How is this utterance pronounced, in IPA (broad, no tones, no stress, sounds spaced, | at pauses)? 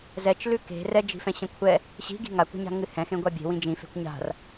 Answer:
z ɛ t͡ʃ l ʉ k e̤ r ɛ d͡ʒ i̤ f ɛ̃ ɕ ɛ̃ kʷʰ ɛ | ɕ i̤ ɡ i̤ ŋ a kʷ e̤ ɲ a̤ ŋ ɨ h ɛ̃ x ẽ ɡʷ a bʲ e̤ w ĩ d͡ʒ ĩ f e̤ kʷ ɲ a̤ r